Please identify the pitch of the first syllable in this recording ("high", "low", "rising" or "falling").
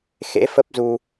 rising